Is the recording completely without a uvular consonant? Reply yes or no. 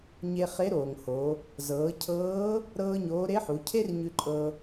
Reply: no